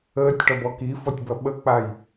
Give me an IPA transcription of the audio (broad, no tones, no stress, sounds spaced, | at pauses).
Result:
əː tʲ ʈ ɒ b ɔ k i f ɔ tʲ b ɐ ɓ ə k͡p a j